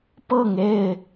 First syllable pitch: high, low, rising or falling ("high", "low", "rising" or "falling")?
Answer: falling